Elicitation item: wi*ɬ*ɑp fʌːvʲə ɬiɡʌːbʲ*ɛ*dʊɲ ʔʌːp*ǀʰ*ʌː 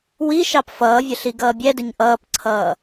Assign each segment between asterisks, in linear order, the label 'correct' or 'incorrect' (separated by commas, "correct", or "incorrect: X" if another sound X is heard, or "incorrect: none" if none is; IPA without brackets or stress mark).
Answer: incorrect: ʃ, correct, correct